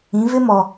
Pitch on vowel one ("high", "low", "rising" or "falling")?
rising